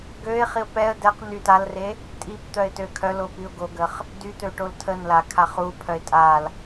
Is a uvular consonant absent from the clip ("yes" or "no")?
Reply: no